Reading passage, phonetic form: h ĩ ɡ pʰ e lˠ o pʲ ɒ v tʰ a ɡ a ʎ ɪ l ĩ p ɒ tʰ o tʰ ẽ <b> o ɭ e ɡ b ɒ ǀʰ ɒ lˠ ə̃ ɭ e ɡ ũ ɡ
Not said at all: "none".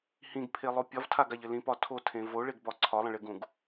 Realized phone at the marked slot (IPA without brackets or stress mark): v